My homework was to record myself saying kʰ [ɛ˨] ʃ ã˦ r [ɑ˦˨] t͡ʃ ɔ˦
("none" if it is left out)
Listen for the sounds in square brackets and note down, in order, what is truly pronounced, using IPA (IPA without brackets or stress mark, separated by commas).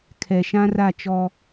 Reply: ɛ˨, a˦˨